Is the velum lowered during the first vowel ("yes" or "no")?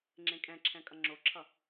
yes